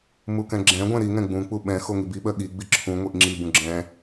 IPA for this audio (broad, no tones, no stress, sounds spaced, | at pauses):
m u k ɛ̃ ɡ͡ǁ ɛ̃ ɡʷ ɛ̃ ɾ i ŋ ɛ̃ ɡ͡b ũ k͡p u ɓ ɛ̃ x o ŋ i b i ɓ ɜ ɠ i ɡ͡b i ǁʰ ũ ŋʷ i ʔ ŋ͡ǁ i b ũ ɡ͡ǁ ɛ̃